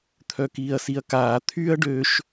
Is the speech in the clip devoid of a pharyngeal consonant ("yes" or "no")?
yes